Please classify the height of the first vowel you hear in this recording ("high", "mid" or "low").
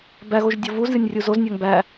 low